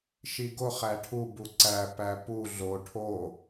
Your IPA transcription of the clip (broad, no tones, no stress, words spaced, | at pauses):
ʃiɡo χæʈʰu buǀæ pæpu ɮo ʈʰo